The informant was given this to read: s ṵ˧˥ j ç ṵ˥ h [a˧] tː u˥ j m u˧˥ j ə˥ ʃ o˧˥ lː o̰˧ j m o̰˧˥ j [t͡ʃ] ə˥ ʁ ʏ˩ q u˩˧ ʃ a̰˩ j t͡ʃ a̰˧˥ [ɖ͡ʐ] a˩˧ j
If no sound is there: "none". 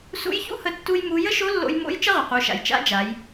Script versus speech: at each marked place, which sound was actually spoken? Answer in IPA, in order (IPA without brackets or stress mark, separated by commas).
ə˧, t͡ʃ, d͡ʒ